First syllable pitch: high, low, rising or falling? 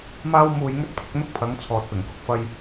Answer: high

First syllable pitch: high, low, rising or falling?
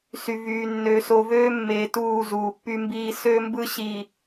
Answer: low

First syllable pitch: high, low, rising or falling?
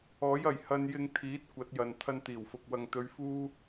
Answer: rising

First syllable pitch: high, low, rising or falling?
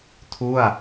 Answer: falling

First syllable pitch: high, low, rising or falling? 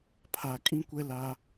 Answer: low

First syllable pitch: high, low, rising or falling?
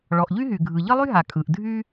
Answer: low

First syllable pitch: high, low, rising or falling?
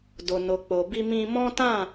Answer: low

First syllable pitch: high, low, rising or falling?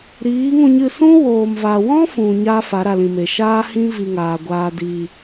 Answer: rising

